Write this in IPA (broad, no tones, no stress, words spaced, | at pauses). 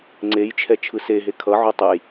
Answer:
ŋ͡ǀejt͡ʃʰɛ t͡ʃʰɯseɦe kʰʌ ʕotˤɯj